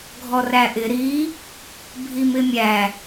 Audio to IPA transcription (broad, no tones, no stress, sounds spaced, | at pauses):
ɡʱ ɔ r æ ʔ ɪ ɾ i | bʱ i m ɪ mʲ æ